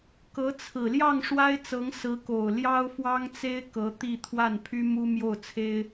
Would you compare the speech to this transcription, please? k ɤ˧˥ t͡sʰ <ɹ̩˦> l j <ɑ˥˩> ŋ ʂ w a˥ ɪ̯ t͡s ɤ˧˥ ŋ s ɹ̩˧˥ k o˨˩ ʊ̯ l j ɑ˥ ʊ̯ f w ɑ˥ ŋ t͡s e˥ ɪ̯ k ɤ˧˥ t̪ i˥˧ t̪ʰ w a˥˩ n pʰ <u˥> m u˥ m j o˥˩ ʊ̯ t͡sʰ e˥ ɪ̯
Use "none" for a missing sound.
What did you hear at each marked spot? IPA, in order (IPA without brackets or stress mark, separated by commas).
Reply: ɹ̩˨˩, ɑ˥˩, y˥